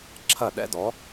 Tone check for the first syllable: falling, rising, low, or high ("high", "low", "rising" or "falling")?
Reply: falling